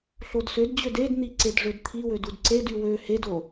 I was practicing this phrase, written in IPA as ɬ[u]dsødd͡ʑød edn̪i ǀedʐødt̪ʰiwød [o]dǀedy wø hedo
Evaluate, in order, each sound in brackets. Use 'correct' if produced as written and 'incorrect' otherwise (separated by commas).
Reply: incorrect, incorrect